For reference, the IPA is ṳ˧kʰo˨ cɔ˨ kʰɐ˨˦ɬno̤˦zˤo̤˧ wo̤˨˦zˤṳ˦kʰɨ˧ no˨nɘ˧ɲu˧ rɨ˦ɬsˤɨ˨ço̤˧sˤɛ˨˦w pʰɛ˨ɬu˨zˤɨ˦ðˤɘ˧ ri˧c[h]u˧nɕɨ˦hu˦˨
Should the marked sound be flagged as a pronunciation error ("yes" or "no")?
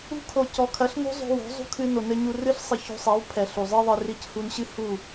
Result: no